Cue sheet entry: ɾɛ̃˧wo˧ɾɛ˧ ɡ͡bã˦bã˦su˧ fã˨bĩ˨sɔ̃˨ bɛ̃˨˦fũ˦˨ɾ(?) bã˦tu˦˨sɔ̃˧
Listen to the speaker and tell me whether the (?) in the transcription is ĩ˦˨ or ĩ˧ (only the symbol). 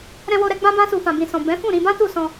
ĩ˧